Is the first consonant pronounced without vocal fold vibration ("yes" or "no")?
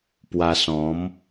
yes